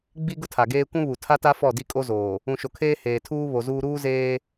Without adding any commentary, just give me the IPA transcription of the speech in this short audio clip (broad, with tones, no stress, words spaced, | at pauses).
ɡ͡bi˦ ɡʊ˦tʰa˨ɡeː˦ kʷũ˦βu˨ tʰa˦ta˦ fɔ˦˨di˦kʼo˦zoː˨ | ũ˨ʃo˨kʰeː˦ heː˨tʰuː˦ βo˨zuː˦ ɾuː˦zeː˦